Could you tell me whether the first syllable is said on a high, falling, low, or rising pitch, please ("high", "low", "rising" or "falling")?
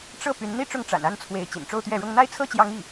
falling